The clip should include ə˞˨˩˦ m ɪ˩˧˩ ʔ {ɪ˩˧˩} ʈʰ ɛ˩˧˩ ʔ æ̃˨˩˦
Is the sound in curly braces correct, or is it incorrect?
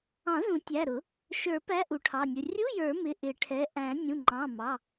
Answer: incorrect